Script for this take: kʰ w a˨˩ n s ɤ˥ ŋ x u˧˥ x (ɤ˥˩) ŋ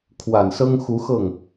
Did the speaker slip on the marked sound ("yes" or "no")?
no